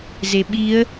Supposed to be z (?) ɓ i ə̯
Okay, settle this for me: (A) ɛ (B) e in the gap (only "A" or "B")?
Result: B